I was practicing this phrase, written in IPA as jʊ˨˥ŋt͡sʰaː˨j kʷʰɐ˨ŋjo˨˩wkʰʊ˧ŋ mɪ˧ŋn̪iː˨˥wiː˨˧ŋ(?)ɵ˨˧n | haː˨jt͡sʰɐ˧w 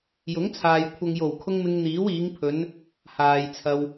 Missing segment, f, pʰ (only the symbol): pʰ